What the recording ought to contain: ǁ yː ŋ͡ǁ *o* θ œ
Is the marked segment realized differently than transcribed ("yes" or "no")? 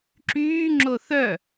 no